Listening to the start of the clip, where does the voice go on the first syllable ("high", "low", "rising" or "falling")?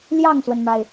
falling